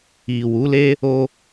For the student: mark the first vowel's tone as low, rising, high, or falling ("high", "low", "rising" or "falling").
low